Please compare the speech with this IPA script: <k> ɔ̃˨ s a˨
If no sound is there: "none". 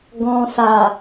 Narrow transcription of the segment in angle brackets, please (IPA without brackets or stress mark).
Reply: ɡ